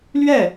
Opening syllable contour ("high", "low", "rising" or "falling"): falling